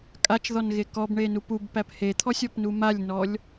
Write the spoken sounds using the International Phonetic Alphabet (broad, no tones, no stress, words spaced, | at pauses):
kʼat͡ʃðɔnɣe kɔbɳenu pubpæp het̪ʰɔsʲɔpnu malʲnɔlʲ